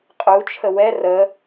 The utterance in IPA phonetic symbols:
qʼut͡ʃʰə wɛ rə

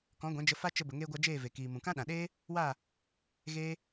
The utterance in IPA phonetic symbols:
kɔ̃˨˦ɡʷɛ̃˨˦d͡ʒə˧ fa˦t͡ʃə˧ bə˨ŋeː˧ɡʷa˧ d͡ʒeː˦˨ve˨kiː˨mũ˨ kã˦ɗã˨ɗeː˦ | wa˦˨ | ɣeː˧

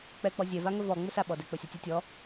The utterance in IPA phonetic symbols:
k͡pɛk͡pɔ zʲɛva ŋɵvɔ ŋ͡mɵsaɓɔdɛ k͡pɵsʲɔtʲə tʲɔ

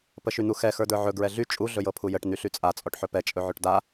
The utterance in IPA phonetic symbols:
pəʃyn̪uxɛ xə˞də˞ʕɵ ɡɹɛɮy t͡ʃʼu ɮɵjɤpʰujəʈ n̪yɬyt͡sʼa t͡sʼɔʈħɵpɛ t͡ʃʼɵʕɵʈda

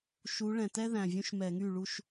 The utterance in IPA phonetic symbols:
ʃu˨˦ ɭɛ̃˨˩tɛ˥ðæ̃˨˩ vʲũ˥ʃmɛ˧˩˧ŋy˥˩ɭu˥˧ʃ

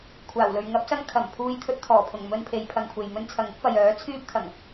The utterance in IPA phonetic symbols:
kʷʰaː˨˩wlɵ˨ɥ ŋɐ˨˥p̚sɐ˧ŋ kʰɐ˨˩mpʰuː˧jt̪ʰɵ˧t̚t̪ʰɔː˨˩ pʰʊ˨˩ŋmɵ˧n pʰe˨˧jpʰɐ˨ŋkʷʰe˨j mɵ˧nt͡sʰɐ˨ŋɪ˥k̚ pɐ˨jœː˨˥ t͡sʰyː˥p̚t̪ʰɐ˨˩ŋ

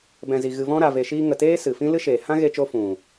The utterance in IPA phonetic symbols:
bɛ̃˨zi˨ ɣɨ˨vɔ̃˧ɾa˨ve˨ ʃiː˧ŋə˨teː˦ sɨ˨ fĩ˦ lɨ˦ʃeː˨ hã˦ ɣe˧t͡ʃo˧ fũ˨

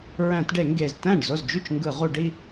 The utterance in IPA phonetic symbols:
ɹæ̃˧˩˧tɖe˧˩˧ŋɡe˨˩z tæ̃˥˩ɖ zo˥˩zd͡ʒy˥˩t͡ʃŋɡɯ˧˩˧ ʁu˧˩˧ɖi˥˧

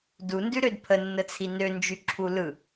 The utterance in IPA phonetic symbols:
du ndʉɾødpʰə nːət͡sʰinø nd͡ʒyǁʰulɯ

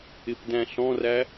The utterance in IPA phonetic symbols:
ɪpdæ̃ɬɔ̃ræ

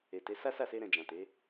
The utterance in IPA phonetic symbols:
e˨te˨˦ sa˦sa˦˨se˧ɾɛ̃˨ d͡ʒã˨te˨˦

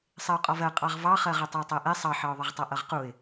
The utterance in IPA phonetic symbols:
sˤɪʊ̯qʼɒvɜ qʼɑʁvɑχɜʁə tˤɪʊ̯tˤɜʔɛ sˤɑħɑʊ̯ðˤʌʁ tˤʌʔʌʁquɪ̯

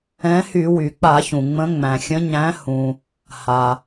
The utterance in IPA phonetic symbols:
ɛ̃˨˥hy˧˩˧ wy˩k͡pa˧˩˧çũ˩ ŋ͡mə̃˨˥ŋ͡mæ̃˩xʲə̃˨˥ ɲæ̃˨˥hũ˩ | ha˩

